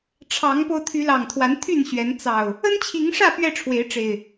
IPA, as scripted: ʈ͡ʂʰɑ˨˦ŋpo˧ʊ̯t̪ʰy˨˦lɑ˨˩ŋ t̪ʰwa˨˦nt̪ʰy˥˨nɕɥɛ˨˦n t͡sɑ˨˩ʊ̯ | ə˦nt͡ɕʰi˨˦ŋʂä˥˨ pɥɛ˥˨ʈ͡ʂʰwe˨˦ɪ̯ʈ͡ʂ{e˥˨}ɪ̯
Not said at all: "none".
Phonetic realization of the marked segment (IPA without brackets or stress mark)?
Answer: e˨˩